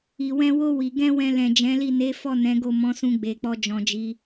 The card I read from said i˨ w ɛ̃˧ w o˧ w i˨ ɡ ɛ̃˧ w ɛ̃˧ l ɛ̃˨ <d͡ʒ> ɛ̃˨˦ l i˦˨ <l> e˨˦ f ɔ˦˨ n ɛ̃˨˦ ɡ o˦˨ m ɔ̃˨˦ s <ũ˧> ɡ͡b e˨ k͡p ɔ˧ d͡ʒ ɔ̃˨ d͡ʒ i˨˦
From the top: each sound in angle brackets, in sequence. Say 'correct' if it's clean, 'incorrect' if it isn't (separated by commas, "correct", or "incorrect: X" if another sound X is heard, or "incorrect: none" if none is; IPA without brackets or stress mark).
correct, incorrect: n, correct